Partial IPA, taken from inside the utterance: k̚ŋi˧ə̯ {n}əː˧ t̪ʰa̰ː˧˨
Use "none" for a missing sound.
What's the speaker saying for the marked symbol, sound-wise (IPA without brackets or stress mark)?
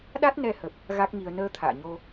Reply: n